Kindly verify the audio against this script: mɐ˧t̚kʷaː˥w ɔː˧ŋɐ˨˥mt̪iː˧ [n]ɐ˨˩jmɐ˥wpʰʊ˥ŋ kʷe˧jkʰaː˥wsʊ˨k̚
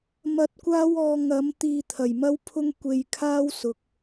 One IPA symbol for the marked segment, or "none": t̪ʰ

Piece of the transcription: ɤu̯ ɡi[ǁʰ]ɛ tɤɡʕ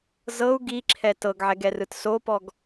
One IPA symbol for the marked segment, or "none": ǁʰ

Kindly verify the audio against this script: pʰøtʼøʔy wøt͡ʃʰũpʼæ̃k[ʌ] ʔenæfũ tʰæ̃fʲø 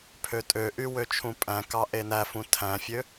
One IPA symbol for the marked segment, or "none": ɑ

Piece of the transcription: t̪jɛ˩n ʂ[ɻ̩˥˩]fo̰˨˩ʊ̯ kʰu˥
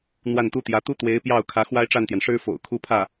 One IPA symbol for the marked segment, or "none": ɻ̩˥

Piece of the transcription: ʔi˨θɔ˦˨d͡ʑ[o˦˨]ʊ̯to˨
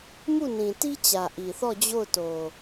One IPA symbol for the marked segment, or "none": o˦˨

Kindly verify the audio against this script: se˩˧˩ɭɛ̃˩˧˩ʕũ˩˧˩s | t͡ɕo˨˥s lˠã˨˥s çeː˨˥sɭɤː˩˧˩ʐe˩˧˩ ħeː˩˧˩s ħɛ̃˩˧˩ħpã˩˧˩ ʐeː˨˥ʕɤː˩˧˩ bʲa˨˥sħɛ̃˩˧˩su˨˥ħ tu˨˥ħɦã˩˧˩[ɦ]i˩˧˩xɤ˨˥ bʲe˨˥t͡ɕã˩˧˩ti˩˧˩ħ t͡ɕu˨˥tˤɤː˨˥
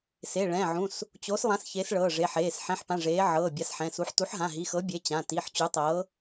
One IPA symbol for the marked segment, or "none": ɦ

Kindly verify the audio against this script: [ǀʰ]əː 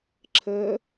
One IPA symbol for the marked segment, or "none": ǁʰ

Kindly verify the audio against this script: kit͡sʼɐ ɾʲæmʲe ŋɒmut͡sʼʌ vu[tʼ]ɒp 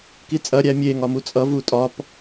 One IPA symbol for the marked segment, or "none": tʼ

